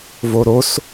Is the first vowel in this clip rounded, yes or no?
yes